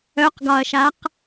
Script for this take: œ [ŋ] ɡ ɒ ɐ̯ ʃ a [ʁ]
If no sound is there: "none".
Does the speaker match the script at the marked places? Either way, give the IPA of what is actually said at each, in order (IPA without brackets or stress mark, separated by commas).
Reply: q, q